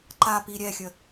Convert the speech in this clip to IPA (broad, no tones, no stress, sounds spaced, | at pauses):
ǃ a p i ɾʲ ɛ xʲ ə